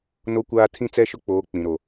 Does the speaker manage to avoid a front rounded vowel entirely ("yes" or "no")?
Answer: yes